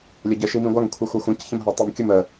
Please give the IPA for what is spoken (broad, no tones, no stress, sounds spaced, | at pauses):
lʲ ə ɟ ə ʃ i m ĩ ɡʷ a ŋ kʷʰ i xʷ a xʷ ɛ̃ c ç ɛ̃ m ɦ a tˤ ɛ m kʲ ɵ m ə